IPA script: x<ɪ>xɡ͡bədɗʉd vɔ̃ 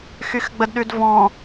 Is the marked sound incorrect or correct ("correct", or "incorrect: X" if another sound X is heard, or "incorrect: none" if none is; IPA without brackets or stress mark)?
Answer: incorrect: y